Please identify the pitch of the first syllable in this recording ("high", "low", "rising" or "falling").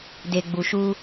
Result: low